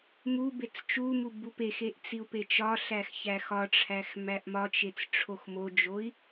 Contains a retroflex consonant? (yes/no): yes